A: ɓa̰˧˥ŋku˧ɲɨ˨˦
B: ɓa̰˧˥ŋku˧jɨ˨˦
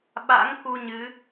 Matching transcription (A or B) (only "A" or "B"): A